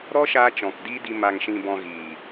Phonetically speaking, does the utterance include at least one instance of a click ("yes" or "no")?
no